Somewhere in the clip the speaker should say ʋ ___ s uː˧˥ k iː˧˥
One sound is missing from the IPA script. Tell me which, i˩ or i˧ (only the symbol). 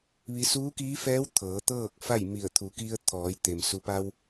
i˧